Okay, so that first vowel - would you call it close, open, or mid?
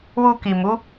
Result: close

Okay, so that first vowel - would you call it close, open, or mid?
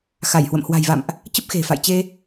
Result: open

